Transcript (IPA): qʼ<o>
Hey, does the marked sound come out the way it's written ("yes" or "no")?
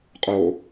yes